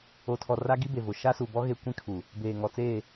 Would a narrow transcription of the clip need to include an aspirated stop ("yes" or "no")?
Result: yes